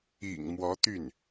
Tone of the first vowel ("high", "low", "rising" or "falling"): low